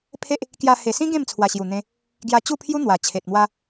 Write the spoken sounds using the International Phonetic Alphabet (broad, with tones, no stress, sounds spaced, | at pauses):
pʰ e˦ ʔ | k j a˧ h e˨˩ s ĩ˦ ɡ ẽ˥˧ m t͡sʰ w a˨˩ ɕ j u˨˩ n̪ ẽ˧ | ɡ j a˧ t͡ɕ u˥˧ pʰ j u˦ n̪ w a˨˩ t͡ɕʰ e˨ t̚ m w a˦